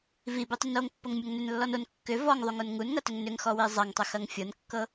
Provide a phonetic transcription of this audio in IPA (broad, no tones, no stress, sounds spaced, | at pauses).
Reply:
v i b i tˤ ʏ n o ŋ pː ɤ ŋ mʲ o ŋ n ʏ n lː ɔ n o n kː ʏ v ɔ ŋ ðˤ u ŋ o n ŋ u n ŋ ɐ t ʏ ŋ n ʏ ŋ x ɔ w i zˤ ɐ ŋ tˤ ʏ x ɐ ŋ fʲ ɤ n kː ɤ